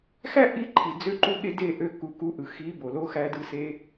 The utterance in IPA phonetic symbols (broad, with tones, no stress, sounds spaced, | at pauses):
x æ˦ ʔ i˧ ǃʰ i˨ d͡z ø˧ ǃ u˧ ɠ e˧ d e˦˨ ʔ ø˧ k u˨ k u˨˦ ʔ ɯ˨ x i˨˦ b o˨ l o˧ x æ˧ d ɯ˧ s e˦